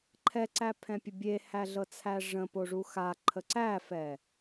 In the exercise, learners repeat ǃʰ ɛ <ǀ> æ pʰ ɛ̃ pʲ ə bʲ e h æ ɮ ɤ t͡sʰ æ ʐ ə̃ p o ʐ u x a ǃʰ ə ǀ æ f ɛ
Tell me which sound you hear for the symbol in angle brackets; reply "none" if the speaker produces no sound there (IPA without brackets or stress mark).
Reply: ǀ